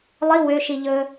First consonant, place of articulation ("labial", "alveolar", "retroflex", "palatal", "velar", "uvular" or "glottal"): alveolar